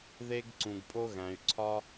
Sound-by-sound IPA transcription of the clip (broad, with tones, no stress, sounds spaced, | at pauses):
ð e˧ ɡ ǀ ũ˩ ɡ pʼ o˧ ɣ æ̃˩ y̯ ǀʰ ɒ˧